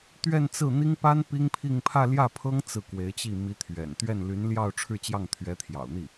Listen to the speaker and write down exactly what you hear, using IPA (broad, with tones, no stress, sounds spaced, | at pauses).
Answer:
t̪ ɥ ɛ˥˧ n t͡s ɹ̩˥˩ n̪ i˥ ŋ p a˥ n p i˥ ŋ pʰ i˥˧ ŋ pʰ ä˥˧ l j ä˥˩ pʰ ɤ˥ ŋ t͡s ɹ̩˥˩ k w e˧˥ ɪ̯ t͡ɕ i˥˩ m i˧˥ t̪ʰ ɥ ɛ̰˨˩ n t̪ ɥ ɛ˥˩ n l y˧˥ n l j ɑ˥˧ ʊ̯ ʈ͡ʂʰ ɻ̩˥˧ t͡ɕ j ɑ˥˩ ŋ t̪ʰ ɥ ɛ˧˥ t̪ʰ j ɑ̰˨˩ ʊ̯ n̪ i˥˩